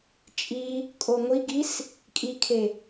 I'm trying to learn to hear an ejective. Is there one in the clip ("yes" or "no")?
yes